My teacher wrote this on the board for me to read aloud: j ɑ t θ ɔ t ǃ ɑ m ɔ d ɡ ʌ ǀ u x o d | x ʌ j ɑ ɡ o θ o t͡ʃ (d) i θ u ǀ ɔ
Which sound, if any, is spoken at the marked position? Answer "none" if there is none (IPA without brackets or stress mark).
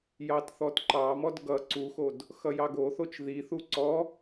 ð